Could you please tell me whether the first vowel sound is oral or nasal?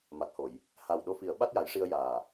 oral